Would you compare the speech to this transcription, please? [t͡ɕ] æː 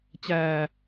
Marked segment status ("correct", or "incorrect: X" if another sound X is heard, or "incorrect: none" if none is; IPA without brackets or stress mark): correct